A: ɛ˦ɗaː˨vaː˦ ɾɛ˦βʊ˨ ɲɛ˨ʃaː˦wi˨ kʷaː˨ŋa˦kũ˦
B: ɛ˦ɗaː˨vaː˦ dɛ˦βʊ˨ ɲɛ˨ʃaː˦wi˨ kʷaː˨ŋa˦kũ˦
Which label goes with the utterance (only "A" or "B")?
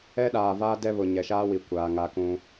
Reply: B